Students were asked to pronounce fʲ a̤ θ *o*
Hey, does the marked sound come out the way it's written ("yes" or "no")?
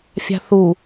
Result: no